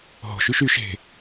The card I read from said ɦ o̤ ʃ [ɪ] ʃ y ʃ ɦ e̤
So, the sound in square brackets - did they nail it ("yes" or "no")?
no